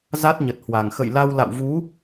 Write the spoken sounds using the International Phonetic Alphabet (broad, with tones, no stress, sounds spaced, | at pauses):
z a˦˥ t̚ ɲ ə˨˩ t̚ h w a˨˩ ŋ x ə̰˧˨ j l a˧ w l a̰˧˨ w v u˨˦